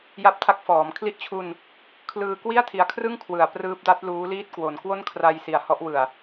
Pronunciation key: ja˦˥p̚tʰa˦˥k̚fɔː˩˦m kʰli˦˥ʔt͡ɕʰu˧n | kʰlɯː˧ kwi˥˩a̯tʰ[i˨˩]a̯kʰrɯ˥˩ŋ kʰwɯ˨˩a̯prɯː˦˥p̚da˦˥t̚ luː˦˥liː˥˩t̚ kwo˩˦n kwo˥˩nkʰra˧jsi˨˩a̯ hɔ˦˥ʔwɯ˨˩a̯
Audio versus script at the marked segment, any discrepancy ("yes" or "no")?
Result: no